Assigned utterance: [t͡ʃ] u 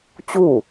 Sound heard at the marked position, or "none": t͡ɕ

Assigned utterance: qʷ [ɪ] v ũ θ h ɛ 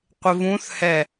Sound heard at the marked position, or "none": ɪ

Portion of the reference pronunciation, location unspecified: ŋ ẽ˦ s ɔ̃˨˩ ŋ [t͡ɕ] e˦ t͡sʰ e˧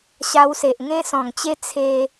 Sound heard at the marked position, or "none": t͡ɕ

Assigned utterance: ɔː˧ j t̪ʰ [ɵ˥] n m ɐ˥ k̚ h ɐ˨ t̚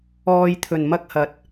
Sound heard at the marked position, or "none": ɵ˨˩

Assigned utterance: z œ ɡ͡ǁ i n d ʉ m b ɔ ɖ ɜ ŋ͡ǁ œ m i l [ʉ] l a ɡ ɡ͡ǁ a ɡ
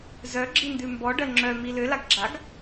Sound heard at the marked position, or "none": ø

